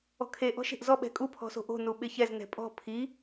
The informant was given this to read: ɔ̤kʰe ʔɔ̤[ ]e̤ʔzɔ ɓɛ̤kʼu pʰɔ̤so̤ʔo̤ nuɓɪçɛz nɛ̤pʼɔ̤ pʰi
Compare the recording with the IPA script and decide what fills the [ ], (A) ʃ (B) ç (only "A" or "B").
A